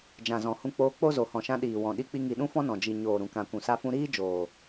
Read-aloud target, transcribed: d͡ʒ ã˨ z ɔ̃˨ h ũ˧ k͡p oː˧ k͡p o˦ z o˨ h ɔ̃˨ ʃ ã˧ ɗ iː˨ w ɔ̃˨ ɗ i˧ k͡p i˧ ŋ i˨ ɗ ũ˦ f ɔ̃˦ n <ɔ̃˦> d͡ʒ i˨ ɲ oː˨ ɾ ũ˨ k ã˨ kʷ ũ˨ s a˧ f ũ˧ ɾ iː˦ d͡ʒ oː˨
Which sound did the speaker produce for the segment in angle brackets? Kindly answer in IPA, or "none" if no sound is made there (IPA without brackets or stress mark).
ɔ̃˨